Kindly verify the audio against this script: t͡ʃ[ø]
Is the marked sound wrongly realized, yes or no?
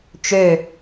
no